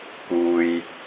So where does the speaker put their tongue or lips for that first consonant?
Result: velum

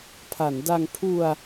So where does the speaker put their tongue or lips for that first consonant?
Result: lips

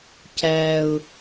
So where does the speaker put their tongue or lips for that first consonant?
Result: palate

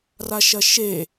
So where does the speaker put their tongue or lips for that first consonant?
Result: tongue tip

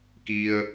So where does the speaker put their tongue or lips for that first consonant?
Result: velum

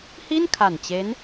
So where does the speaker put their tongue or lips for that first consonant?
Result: throat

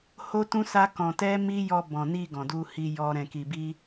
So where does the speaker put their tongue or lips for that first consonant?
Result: throat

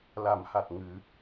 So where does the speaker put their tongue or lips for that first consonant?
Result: tongue tip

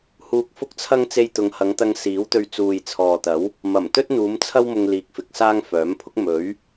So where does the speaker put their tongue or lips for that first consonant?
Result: throat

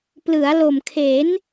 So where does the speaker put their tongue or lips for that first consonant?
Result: lips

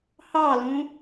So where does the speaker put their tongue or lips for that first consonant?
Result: throat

